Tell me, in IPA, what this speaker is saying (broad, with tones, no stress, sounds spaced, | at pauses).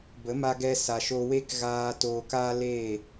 b ə˨˦ m a˧ ɡ ɛ˧ s a˨ ʃ o˧ w e˦ k ɣ aː˧ t oː˧ k aː˦ l eː˦˨